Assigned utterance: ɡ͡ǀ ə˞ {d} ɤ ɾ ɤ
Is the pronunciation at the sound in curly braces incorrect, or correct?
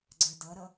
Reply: correct